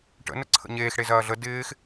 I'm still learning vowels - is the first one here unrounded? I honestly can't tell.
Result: yes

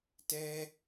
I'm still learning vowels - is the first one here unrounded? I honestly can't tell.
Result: yes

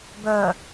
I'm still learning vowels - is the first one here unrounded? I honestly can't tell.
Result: no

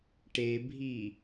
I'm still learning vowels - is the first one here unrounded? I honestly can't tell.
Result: yes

